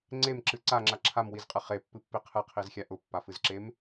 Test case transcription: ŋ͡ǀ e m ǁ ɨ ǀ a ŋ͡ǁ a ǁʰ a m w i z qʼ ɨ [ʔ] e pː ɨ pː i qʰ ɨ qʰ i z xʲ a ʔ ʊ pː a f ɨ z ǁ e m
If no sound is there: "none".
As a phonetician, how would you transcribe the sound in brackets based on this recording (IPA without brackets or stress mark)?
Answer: χ